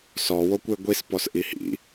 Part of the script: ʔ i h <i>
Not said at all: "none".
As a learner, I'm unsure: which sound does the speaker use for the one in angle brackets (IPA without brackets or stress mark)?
ḭ